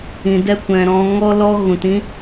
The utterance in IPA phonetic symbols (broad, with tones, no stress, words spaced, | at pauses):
ĩ˨dɛ˧kʷɛ̃˨ ɾɔ̃˨ ŋɔ˧lɔ˧ ɣũ˨tĩ˧